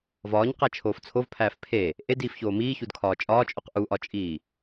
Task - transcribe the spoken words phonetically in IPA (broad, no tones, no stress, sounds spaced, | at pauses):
v ɒː ɲ q æ t͡ʃʰ oː f t͡sʰ o v pʰ æː f pʰ e | ʔ e d iː f ç oː m iː ç u d kʰ ɒː t͡ʃʼ ɒː t͡ʃʼ o q ʔ u ʔ ɒ t͡ʃʼ iː